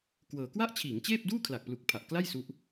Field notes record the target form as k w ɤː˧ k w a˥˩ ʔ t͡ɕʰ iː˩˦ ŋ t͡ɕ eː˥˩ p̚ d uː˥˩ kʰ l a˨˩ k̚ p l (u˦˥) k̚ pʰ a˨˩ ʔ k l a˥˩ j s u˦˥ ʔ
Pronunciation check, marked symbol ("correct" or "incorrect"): incorrect